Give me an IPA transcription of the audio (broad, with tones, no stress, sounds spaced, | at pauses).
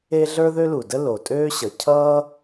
e˥ ɮ ə˞˥ ð ø˥ l u˩ d ə˥ l o˩ tʼ øː˥ ɕ ʌ˩ cʰ ʌː˥